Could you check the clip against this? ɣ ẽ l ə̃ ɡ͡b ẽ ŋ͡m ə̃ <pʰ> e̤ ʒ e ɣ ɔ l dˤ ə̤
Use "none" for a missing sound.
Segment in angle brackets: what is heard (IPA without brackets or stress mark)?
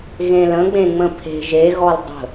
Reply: pʰ